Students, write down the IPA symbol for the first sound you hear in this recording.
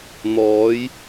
n̪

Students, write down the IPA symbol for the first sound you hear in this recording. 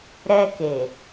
ɾ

